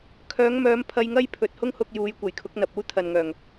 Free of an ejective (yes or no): yes